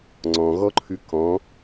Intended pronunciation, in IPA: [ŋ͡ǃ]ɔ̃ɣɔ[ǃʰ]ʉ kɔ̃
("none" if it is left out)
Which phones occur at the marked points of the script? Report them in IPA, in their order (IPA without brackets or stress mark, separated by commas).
ŋ͡ǀ, ǃʰ